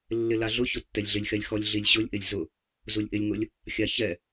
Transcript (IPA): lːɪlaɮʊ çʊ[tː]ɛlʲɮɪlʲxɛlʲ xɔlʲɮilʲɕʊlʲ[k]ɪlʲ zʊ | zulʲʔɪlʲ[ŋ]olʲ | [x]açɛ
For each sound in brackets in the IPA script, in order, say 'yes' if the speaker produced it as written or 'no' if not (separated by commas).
yes, no, yes, no